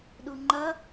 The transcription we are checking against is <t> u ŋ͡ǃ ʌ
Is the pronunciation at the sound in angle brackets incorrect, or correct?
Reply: incorrect